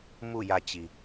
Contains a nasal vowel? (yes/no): no